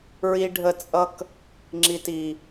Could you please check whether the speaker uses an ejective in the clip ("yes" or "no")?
yes